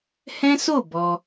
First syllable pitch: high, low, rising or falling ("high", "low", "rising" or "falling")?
high